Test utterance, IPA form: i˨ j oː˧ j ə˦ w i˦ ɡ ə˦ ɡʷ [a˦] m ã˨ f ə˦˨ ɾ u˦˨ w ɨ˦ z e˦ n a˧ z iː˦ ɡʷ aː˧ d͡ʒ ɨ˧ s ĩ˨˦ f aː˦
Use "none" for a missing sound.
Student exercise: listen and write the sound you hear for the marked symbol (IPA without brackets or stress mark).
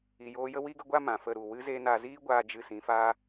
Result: a˦